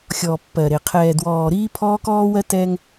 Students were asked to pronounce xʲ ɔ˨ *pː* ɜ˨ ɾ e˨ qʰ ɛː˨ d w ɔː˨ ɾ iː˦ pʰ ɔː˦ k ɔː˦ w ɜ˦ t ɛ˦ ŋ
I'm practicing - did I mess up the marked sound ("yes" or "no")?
no